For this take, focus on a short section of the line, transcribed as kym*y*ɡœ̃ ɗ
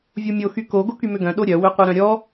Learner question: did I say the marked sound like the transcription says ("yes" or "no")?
no